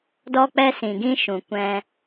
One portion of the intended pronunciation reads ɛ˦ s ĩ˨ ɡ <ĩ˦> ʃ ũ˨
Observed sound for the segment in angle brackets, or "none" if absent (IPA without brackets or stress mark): ĩ˦